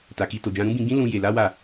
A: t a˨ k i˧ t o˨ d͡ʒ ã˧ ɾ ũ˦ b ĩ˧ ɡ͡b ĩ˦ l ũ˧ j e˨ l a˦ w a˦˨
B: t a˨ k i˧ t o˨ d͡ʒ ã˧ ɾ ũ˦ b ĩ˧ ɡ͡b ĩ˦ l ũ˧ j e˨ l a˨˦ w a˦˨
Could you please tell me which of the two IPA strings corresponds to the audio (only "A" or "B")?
B